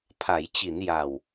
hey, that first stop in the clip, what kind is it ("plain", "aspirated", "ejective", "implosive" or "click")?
aspirated